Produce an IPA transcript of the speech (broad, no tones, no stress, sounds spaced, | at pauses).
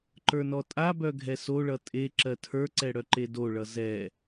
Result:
ǃ ə˞ n ɔ tʼ a b œ ɡʱ ɛ s o ɭ ʌ tʼ e ǁ ɜ tʰ ə˞ ǀ ɛ ɽ œ ǃ e d o ɭ ʌ z ɛ